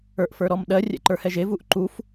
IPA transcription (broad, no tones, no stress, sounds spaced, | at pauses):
ə˞ ʔ f ə˞ ɾ ɔ m ɗ ɜ rʲ ɛ̰ ǃ ə˞ h ɛ ʒ e v u ʔ ǃ u f